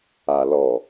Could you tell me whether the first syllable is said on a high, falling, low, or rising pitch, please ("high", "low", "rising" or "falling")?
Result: low